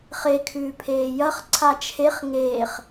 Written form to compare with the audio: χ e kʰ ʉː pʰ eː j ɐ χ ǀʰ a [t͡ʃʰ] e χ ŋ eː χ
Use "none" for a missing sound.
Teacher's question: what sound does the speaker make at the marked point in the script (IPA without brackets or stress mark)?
t͡ʃʰ